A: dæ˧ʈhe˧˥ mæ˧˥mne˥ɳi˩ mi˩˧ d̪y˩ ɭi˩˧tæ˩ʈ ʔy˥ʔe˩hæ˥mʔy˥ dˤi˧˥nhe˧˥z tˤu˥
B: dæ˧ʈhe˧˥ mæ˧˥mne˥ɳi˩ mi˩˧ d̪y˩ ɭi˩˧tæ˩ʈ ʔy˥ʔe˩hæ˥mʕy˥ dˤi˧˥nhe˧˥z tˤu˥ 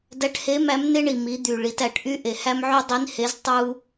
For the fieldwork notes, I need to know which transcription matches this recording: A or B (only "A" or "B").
B